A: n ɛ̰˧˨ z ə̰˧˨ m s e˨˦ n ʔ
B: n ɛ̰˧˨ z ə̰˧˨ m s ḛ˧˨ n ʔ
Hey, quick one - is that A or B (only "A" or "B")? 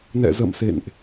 B